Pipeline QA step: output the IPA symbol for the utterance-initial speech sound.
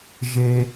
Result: ʒ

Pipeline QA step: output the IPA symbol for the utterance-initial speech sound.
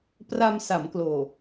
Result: p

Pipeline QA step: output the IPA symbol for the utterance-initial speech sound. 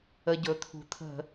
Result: ə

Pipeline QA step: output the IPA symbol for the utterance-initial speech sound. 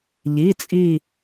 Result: ʎ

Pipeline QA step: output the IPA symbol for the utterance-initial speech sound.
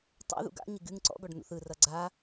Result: tˤ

